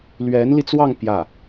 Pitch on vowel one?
rising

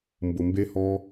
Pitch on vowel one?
low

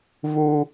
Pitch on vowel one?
high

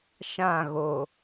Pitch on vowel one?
falling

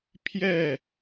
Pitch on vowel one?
falling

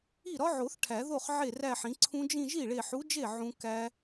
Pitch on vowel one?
falling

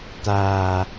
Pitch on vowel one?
low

